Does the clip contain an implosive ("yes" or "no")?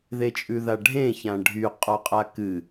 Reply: no